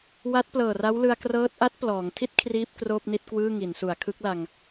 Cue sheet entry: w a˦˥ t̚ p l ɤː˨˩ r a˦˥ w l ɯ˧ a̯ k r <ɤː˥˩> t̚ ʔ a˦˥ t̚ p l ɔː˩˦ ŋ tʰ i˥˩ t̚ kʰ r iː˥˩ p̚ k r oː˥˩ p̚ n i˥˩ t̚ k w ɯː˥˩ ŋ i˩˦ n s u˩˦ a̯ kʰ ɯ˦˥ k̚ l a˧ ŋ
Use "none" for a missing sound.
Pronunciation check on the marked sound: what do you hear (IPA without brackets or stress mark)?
ɤː˦˥